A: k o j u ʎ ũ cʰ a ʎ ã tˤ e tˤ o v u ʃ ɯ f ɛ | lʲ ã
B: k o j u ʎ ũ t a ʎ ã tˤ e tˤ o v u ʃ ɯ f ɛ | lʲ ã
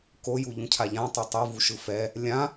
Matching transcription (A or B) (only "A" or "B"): A